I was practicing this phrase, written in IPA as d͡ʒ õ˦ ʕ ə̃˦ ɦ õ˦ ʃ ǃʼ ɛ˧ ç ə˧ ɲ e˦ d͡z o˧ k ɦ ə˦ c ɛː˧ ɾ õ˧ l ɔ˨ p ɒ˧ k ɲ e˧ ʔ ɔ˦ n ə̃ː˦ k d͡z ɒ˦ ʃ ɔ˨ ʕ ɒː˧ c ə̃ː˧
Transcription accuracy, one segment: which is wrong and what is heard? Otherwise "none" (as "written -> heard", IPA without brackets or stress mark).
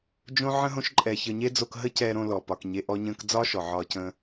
n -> ɲ